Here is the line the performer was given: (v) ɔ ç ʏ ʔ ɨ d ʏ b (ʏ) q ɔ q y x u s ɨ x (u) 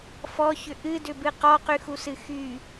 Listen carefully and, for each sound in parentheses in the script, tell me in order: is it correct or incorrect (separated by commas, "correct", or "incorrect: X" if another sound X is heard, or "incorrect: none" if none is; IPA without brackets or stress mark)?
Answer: incorrect: f, incorrect: ɨ, incorrect: y